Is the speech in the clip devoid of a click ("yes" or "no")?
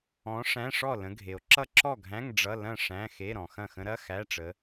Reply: no